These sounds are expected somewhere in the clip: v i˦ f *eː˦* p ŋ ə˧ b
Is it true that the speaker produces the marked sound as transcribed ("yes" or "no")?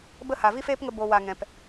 yes